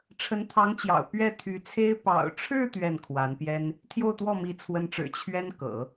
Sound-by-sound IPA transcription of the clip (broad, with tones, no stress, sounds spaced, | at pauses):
ʈ͡ʂʰ ə˧˥ n t̪ʰ ɑ˧˥ ŋ t͡ɕ j ɑ̰˨˩ ʊ̯ p ɥ ɛ˥˩ t̪ʰ y˧˥ t͡sʰ e˥ ɪ̯ p ɑ̰˨˩ ʊ̯ ʈ͡ʂʰ ɻ̩˥˧ t̪ ɥ ɛ˥˩ n kʰ w a˧˥ n p j ɛ˥ n | t̪ʰ j o˥˧ ʊ̯ t̪ w ɔ˥˩ m i˧˥ t͡sʰ w ə˧˥ n ʈ͡ʂ ɻ̩˨˩ t͡ɕʰ ɥ ɛ˥ n k ɤ̰˨˩˦